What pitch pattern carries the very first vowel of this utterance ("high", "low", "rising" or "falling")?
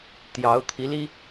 rising